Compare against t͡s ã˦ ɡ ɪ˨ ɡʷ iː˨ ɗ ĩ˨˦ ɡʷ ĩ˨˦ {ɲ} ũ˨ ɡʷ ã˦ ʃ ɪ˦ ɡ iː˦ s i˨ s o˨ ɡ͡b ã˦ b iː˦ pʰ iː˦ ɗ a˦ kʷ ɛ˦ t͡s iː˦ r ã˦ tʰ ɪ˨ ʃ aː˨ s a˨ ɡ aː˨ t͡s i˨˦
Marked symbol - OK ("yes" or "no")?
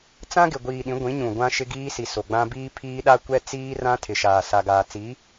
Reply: yes